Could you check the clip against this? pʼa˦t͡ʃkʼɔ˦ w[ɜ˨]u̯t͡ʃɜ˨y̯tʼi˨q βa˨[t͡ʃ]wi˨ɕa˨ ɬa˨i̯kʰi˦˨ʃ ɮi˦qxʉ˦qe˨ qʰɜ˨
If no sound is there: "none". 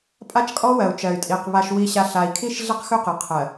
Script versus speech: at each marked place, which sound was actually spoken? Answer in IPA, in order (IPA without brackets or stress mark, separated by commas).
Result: ɜ˨, ʃ